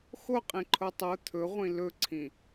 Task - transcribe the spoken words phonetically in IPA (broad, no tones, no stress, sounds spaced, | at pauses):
x o qʼ ĩ ǃʰ o tˤ o t̪ʰ ɵ ʁʷ ĩ l ɵ ǀʰ ĩ